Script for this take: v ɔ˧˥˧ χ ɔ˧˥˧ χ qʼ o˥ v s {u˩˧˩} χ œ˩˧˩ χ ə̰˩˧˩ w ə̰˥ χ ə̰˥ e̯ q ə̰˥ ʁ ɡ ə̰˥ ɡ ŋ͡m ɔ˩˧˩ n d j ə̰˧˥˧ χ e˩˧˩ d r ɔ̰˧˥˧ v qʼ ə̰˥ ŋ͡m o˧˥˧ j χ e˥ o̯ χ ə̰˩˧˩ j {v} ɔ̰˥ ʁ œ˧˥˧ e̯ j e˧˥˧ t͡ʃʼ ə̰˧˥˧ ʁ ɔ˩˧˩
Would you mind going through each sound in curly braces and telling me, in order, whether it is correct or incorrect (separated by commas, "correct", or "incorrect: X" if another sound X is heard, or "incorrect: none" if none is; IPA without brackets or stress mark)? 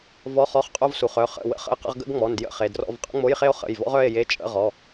correct, correct